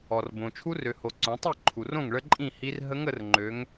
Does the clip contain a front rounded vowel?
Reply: yes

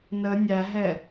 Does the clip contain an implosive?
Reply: no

